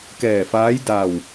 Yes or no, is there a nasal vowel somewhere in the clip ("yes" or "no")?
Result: no